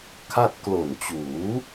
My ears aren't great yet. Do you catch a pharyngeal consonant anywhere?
no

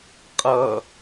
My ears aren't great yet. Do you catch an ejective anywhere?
yes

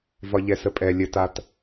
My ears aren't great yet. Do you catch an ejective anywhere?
yes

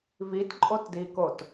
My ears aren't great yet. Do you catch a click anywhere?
yes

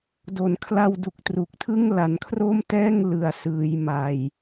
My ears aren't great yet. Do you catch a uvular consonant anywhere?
no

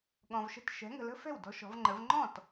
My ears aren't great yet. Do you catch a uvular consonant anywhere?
no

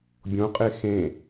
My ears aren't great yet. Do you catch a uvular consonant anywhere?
yes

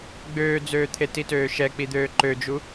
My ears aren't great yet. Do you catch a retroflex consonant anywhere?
no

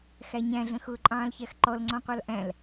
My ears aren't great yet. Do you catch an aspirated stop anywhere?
no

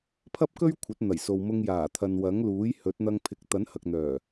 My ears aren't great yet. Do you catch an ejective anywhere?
no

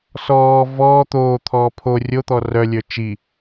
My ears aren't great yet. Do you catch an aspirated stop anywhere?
yes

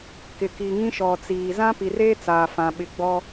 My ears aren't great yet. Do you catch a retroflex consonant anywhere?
no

